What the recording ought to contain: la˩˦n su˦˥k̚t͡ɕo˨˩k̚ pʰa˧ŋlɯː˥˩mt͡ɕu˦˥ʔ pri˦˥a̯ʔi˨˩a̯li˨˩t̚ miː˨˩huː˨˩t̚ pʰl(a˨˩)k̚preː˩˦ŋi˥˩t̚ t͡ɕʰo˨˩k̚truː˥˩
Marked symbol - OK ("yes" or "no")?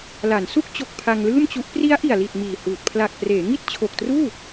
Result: yes